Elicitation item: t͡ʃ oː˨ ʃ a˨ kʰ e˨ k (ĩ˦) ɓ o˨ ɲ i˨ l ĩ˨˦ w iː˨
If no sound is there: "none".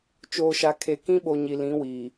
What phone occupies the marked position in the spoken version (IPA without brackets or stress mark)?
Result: ĩ˦